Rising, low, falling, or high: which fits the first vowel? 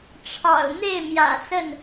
low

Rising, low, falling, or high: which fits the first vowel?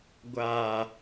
low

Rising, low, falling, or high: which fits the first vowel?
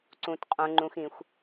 low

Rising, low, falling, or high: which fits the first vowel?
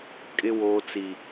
high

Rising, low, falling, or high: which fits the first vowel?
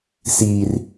high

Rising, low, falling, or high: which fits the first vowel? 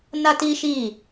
high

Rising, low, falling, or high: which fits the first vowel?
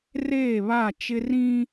falling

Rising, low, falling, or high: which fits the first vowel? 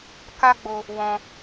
high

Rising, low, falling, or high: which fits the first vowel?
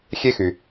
high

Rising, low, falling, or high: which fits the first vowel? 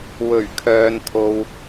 low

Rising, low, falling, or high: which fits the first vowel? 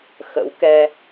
rising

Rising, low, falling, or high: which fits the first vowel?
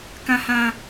high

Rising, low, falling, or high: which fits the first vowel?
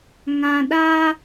low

